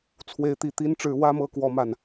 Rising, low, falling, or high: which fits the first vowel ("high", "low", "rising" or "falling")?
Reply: rising